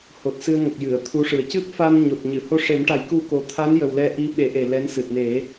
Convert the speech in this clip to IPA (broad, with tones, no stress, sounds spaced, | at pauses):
h o˨˩ t̚ s ɨ˧ ə̯ ŋ ə˨˩ k̚ j ɨ˨˩˨ ə̯ t̪ʰ u˧˥ ʂ ɨ˨˩ ə̯ c ɨ˦˥ p̚ f a˧ n ɲ o˨˩ t̚ ɲ ɨ˨˩˨ h o˧ ʂ e˨˩˦ m ʈ a˨˩˦ j k u˧ k o˨˩ t̪ʰ a˧˥ n j ə˨˩ w l ɛ˧ ʔ i˧˥ ɓ e˨˩˦ ʔ e˨˩ l ɛ˧˥ n s ɨ˨˩ t̚ n e˨˩˦